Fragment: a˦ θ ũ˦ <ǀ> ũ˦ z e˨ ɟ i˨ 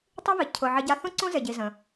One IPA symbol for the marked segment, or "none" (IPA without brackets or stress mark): ǀ